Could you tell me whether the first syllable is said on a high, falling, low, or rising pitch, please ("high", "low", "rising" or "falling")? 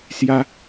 high